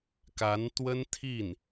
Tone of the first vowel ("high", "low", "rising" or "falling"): rising